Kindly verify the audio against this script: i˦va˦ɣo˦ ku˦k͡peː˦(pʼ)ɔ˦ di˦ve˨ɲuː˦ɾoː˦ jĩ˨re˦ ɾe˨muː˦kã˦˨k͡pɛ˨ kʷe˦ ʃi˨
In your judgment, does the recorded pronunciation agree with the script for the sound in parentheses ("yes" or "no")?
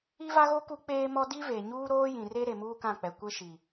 no